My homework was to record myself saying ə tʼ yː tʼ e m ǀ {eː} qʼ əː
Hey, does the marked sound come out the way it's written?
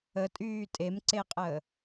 no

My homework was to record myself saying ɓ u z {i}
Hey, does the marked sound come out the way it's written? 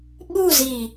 yes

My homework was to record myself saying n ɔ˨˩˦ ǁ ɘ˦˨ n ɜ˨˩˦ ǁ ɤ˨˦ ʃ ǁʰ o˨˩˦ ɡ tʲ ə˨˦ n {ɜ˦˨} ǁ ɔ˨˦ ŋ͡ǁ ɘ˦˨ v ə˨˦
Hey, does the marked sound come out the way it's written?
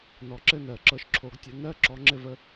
yes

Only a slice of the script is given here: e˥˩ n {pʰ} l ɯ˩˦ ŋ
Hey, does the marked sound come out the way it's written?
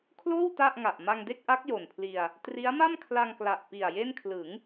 no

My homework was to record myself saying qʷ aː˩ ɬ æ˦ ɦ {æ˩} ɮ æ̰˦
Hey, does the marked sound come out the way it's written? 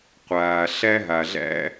no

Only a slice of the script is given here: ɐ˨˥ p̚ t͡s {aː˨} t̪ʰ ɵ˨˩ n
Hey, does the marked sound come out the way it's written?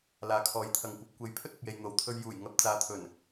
no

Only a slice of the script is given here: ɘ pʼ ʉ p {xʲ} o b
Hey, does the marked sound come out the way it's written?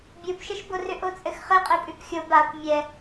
yes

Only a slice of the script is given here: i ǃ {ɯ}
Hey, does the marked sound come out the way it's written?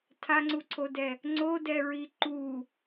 no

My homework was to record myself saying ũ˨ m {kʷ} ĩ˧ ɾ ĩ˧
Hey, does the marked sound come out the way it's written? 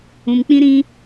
no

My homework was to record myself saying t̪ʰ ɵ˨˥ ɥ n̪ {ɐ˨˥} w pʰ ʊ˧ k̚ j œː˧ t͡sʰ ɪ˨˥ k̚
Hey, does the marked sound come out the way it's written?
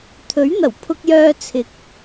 no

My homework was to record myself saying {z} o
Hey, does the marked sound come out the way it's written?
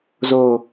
yes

